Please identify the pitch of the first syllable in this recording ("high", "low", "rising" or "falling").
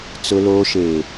low